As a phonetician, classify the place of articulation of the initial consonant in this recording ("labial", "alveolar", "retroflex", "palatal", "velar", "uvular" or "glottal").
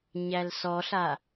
palatal